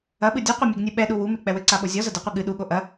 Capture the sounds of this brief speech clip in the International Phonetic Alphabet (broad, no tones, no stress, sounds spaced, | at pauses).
ɐ ɓ ɨ dʲ ɔ qʷ ɛ mʲ e ɡ nʲ u ɓ ɛ ɗ u w u m e k͡p ɛ w ɘ ǀ a ɓ o zʲ ɔ z ɐ d ɨ qʷ i ɠ ɨ ɗ u ɠ o ʔ ɐ